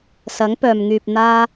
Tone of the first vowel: rising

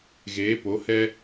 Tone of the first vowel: rising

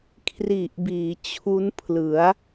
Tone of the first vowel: low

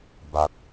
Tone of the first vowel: low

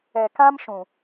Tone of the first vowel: low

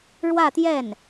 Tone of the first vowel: falling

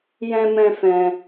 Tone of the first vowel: high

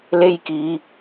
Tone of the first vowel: high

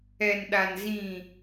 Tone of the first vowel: low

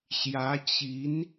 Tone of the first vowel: rising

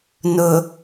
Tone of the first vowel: low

